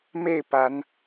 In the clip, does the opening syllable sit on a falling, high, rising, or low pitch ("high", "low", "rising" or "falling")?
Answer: falling